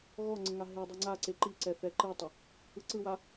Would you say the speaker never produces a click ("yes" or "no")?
no